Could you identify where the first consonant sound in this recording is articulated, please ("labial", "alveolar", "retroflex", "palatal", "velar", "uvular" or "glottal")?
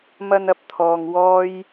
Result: labial